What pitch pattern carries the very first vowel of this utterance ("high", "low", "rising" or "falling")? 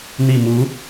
low